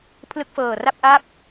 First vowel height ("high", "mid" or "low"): high